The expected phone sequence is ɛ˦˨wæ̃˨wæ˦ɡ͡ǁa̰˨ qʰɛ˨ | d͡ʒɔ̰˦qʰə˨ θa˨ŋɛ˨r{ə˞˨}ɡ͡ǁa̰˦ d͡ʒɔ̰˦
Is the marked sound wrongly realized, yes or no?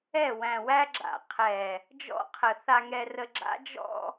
yes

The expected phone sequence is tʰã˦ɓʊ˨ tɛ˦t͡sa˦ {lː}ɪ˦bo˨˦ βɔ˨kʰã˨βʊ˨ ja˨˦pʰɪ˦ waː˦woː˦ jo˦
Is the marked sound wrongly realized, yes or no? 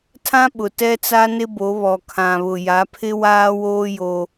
yes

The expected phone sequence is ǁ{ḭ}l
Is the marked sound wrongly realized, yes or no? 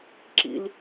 no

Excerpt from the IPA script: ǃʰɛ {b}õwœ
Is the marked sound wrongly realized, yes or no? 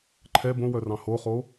no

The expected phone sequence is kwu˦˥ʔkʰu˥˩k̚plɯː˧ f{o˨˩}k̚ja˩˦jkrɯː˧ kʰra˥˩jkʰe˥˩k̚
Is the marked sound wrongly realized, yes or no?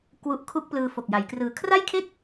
no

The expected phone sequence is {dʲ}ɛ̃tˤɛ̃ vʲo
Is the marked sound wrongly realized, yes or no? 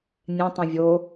yes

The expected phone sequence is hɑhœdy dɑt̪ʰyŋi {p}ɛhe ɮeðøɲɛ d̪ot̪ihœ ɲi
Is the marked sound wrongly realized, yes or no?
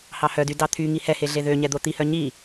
yes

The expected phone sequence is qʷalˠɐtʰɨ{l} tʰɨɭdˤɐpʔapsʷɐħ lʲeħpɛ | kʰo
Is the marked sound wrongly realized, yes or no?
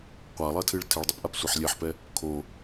yes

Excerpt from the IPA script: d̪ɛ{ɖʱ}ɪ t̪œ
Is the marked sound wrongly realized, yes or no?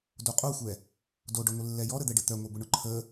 yes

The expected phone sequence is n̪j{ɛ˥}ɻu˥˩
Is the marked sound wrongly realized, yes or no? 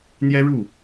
no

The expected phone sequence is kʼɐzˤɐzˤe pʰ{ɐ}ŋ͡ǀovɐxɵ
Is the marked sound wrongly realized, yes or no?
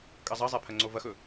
no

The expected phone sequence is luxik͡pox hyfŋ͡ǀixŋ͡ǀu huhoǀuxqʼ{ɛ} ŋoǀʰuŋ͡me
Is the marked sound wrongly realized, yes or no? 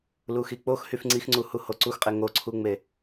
yes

